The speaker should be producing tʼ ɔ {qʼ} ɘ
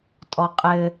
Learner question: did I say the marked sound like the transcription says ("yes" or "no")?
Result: yes